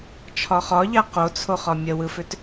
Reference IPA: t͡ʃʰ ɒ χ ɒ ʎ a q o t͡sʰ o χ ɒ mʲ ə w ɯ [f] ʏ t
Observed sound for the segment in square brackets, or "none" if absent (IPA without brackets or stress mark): f